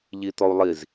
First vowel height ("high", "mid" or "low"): high